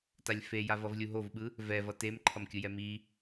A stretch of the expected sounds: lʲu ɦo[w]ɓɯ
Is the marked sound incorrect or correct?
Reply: incorrect